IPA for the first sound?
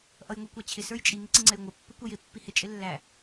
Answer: ʔ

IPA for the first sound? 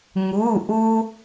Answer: ŋ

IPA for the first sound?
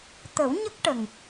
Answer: t̪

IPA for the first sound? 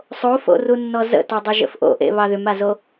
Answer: sˤ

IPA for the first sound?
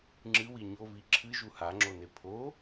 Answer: ŋ͡ǁ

